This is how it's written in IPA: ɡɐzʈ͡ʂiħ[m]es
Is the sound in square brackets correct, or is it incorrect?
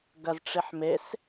correct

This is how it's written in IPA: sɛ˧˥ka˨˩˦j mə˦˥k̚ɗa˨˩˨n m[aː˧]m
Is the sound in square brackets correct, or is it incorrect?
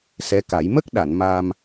correct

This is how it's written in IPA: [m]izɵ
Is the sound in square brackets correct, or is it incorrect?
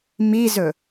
correct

